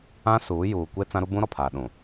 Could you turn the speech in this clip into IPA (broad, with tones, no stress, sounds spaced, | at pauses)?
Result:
ã˦ s uː˨˦ j uː˨ kʷ e˦ t͡s ã˦ ɾ u˦ b ũ˦ ɾ ɔ˨ pʰ aː˨ ɗ ũ˨